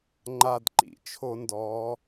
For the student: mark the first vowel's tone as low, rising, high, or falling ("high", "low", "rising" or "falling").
low